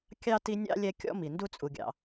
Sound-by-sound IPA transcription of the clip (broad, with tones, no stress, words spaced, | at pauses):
kʲɑ˥ti˦nʲɑ̰˥ lʲɛ˦ kʲɔ̰˥mi˩ ndu˥t͡sʼu˨ɡʲɑ̰˨